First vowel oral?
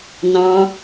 no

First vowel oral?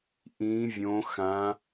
no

